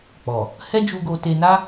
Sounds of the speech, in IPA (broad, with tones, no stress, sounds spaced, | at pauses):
k͡p ɔ˨ | h ɛ˦ d͡ʒ u˧ ɡ o˧ t e˧ n a˦